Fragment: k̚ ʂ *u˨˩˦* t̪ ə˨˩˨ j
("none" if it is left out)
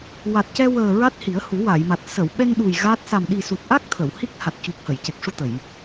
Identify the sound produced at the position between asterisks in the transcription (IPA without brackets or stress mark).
u˧